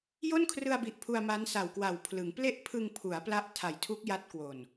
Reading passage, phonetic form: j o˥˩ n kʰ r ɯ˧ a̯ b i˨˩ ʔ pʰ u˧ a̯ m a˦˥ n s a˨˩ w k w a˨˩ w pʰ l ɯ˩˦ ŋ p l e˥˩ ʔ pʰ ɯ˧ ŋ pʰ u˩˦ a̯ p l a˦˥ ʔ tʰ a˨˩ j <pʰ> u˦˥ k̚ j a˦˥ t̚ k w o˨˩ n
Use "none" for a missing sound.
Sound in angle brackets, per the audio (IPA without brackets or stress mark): tʰ